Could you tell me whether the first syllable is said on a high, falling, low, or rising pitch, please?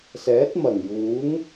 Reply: rising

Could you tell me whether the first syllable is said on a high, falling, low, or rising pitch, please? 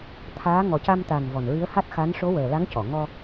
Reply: rising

